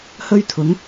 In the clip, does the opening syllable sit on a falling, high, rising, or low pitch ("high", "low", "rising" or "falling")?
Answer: high